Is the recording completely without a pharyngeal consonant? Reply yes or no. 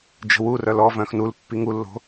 yes